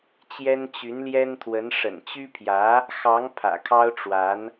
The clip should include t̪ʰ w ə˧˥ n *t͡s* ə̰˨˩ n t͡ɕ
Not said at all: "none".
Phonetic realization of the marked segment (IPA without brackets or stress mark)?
ʂ